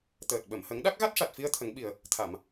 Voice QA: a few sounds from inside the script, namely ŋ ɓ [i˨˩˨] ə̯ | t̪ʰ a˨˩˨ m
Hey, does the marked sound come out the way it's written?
no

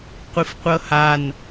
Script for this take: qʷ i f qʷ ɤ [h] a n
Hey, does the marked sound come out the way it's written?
yes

